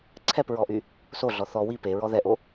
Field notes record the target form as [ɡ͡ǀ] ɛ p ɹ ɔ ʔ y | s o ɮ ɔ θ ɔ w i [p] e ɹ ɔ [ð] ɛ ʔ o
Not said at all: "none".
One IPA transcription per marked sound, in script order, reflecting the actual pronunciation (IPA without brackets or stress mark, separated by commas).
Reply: ǀʰ, p, ð